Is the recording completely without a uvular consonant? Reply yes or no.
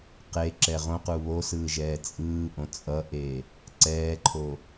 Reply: no